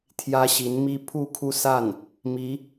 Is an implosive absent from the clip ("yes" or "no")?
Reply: yes